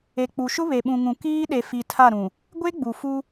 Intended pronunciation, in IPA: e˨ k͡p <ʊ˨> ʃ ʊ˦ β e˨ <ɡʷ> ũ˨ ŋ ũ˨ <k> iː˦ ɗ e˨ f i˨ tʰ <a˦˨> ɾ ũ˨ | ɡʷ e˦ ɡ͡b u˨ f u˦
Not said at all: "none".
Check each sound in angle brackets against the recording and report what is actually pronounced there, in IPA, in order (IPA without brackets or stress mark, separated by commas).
u˨, ɓ, k, a˦˨